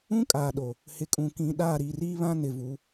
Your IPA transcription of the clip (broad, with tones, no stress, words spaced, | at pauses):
ũ˦kʼaː˨ ɗo˨ | hɪ˨kʼũ˨ kĩ˨ ɗaː˦˨ɾi˨riː˦ βã˦nɪ˨vu˨˦